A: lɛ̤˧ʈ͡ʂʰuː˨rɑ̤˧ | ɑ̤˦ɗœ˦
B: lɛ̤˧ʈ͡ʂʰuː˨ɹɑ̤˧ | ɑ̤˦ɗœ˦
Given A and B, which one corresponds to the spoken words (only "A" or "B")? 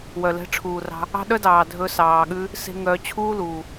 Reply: A